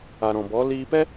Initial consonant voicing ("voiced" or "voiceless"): voiced